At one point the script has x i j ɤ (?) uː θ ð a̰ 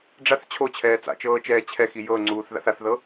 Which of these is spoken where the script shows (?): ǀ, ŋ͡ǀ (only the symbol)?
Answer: ŋ͡ǀ